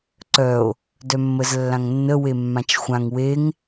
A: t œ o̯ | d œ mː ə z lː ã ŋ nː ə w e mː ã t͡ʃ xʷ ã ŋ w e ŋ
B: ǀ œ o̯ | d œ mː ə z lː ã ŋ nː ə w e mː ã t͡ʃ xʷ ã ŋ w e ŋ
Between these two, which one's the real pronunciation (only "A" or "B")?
B